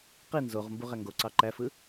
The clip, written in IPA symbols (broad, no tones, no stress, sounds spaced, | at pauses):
q i n z o ʁ m b u ʁ æ ŋ ɡ o ǀ ɑ ǃ æ f ɯ